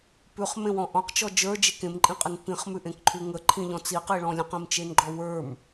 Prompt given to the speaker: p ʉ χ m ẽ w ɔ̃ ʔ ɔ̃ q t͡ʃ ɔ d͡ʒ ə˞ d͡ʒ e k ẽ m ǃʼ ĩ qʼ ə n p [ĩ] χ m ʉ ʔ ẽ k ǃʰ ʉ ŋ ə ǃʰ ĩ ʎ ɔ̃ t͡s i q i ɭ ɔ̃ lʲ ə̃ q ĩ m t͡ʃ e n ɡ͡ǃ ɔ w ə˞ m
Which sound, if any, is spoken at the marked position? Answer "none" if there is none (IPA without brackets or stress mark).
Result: ĩ